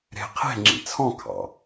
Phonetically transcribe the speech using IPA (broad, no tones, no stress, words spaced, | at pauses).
ɾe̤ qʰe̤ ŋ͡ǁḭt͡sʰɔ̃ kʰɑ̰